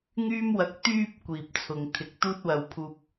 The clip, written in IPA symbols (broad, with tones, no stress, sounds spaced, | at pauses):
ŋ yː˥ m w ɐ˧ k̚ t̪ yː˧ p̚ kʷ iː˨ p̚ t͡sʰ ʊ˨ ŋ t̪ʰ ɪ˨ k̚ t̪ uː˥ t̚ w ɐ˧ w pʰ uː˧ p̚